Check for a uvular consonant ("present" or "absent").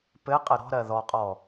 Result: present